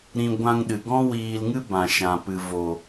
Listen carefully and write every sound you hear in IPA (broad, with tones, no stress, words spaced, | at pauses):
ɾĩ˧ ɡʷã˧ŋɗɨ˨ɡɔ̃˦ wiː˧lŋɨ˦ bã˨ʃã˨pɨ˨ vo˨